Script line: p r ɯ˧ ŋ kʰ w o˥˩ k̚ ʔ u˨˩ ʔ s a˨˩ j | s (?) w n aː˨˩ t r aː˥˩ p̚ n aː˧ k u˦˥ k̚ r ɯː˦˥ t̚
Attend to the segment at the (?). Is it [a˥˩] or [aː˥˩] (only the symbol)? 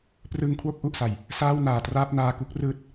aː˥˩